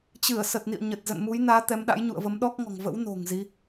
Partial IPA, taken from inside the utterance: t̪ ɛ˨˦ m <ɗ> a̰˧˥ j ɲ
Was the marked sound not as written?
no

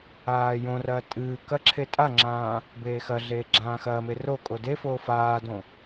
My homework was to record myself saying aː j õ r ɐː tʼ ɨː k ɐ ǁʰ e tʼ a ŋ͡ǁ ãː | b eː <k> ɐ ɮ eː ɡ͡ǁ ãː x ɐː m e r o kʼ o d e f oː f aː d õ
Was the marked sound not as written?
yes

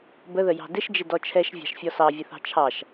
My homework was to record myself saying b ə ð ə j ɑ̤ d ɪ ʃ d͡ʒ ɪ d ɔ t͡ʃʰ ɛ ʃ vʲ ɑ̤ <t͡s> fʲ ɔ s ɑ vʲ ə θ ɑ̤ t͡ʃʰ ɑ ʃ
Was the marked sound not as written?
yes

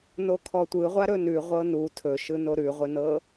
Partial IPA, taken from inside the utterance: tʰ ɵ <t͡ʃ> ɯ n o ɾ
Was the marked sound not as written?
yes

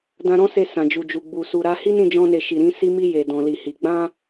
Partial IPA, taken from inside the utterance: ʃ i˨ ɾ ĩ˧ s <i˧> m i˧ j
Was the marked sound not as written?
no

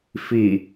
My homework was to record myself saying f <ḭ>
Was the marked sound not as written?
yes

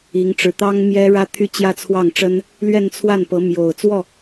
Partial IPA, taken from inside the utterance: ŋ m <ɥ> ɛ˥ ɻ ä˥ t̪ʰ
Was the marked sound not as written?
yes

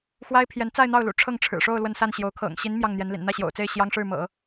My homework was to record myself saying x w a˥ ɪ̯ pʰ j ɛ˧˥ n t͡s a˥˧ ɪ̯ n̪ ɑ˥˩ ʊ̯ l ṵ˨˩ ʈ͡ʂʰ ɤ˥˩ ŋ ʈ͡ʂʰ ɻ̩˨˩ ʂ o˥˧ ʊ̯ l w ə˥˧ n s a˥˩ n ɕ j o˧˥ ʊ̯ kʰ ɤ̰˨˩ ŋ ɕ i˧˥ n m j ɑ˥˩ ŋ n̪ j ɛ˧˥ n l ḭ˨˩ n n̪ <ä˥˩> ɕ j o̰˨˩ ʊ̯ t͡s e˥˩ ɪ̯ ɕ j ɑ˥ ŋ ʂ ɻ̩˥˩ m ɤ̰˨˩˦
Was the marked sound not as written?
no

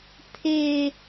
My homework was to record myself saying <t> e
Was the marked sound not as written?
yes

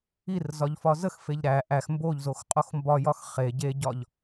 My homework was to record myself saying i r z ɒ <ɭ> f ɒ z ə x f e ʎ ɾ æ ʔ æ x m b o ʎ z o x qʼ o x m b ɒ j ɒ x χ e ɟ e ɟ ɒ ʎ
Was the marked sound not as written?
yes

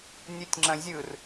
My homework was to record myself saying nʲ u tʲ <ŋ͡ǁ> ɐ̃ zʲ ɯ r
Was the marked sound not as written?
no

